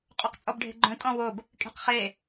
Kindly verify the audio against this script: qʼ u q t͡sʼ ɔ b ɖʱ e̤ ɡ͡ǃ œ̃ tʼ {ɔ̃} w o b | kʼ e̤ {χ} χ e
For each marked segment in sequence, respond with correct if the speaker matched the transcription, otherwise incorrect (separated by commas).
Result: correct, incorrect